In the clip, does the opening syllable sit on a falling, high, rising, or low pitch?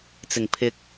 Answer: low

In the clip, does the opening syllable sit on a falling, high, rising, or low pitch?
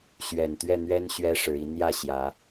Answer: low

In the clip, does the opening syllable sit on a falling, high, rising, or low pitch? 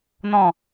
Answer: low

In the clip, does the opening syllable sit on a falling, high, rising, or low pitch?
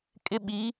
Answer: high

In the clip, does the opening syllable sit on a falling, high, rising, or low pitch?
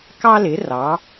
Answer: high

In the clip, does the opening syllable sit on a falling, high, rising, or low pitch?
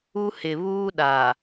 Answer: high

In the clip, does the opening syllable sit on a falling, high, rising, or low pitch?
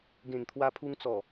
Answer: low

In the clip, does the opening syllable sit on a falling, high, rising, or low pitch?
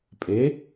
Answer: rising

